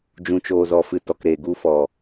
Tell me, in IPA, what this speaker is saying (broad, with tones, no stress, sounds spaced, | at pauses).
d͡ʒ ũ˨ t͡ʃ oː˨ z ɔ˨ f ɨ˨ t ɔ˨ k ɾ eː˨ ɡ u˧ f ɔ˨